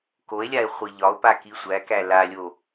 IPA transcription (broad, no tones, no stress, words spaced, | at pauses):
koe̯lʲae̯ χʷiʎɒo̯pa kisʷækæ lalʲo